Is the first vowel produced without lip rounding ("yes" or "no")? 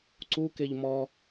no